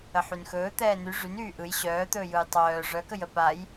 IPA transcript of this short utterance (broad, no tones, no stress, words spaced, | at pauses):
əħynxɵː t̪ɛːny ʐyn yːʔɯj ɕœːt̪ɵː jɯjtˤœː ʐœkəjə paj